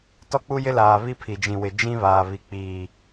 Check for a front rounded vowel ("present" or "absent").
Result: absent